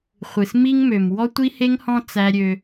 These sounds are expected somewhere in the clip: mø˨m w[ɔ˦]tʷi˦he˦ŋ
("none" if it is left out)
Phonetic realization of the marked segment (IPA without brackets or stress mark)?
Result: ɔ˦